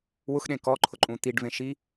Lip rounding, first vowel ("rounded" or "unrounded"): rounded